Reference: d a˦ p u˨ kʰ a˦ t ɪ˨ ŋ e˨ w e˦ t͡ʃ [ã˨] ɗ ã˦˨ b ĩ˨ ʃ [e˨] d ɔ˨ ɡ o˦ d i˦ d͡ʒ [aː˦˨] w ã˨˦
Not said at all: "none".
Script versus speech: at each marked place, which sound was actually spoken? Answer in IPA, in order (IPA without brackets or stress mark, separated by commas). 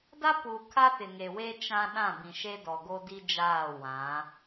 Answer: ã˦, e˦, aː˦˨